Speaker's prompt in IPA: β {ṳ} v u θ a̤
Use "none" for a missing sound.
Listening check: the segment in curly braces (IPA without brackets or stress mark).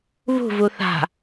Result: ṳ